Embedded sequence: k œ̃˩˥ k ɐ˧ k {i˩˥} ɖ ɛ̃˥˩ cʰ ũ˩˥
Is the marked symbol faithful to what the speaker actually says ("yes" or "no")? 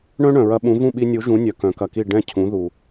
no